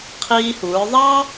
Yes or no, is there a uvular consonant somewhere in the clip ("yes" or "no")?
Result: yes